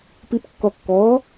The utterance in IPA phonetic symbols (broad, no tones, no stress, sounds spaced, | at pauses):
p i p kː ɔ kː ɔː